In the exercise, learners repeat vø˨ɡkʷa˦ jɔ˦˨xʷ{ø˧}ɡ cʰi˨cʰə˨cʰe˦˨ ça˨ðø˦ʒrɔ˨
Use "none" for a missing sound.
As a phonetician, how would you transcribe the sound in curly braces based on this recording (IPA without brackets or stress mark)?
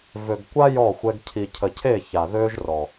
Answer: ɛ˧